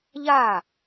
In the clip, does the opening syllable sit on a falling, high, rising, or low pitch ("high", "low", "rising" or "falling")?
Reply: falling